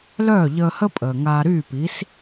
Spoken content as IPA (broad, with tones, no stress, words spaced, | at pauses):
lœː˥˩ʎəː˧hə˥ pʼəː˩ŋaː˧ɾyː˥˩pi˩˥s